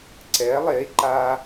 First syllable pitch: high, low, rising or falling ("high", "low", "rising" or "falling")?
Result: rising